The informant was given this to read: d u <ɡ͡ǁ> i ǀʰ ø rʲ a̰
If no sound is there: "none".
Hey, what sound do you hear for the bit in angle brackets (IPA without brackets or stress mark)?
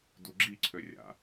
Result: ɡ͡ǁ